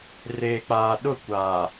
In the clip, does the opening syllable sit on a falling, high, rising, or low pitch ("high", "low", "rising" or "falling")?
low